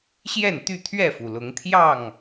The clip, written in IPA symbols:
ɕjɛ˥˨nt̪y˥˨t̪ʰɥɛ˥˨fu˩ lʊ˨˦ŋt̪ʰjɑ˥˨ŋ

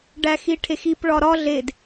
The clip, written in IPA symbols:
ɖæxiʈʰexip ɭɒɾɒ ɮed

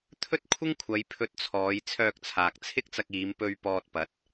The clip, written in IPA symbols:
t̪ʰɵ˥t̚kʷʰɪ˥ŋkʷʰɐ˨˧j pʰɵ˧t̚t͡sʰɔː˨˧j t͡sʰœː˧k̚t͡sʰaː˨k̚t͡sʰɪ˥k̚t͡sɐ˧k̚ iː˨˧mpɵ˧ɥ pɔː˧t̚pɐ˨˥t̚

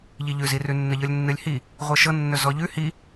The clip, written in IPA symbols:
ʎiʎʉzirʉ nːəʎɤlʲnːɨlʲhi | ʁʷɤʃɤ nːɵzɔʎʉ hi

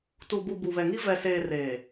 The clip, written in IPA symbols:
tu˨bu˨ bu˨βɛ˨ŋi˦ vɛ˨seː˨ reː˨

